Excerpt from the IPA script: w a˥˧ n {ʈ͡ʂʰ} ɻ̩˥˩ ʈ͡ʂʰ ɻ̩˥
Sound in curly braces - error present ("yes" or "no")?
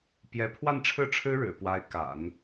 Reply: no